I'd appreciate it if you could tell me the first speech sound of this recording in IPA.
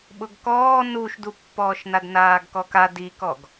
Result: ɓ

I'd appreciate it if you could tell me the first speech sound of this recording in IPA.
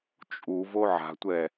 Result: t͡ʃʼ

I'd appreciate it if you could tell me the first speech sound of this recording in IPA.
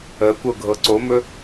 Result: ə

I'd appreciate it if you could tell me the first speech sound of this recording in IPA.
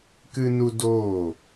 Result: k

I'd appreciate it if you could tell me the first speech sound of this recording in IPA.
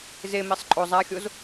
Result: z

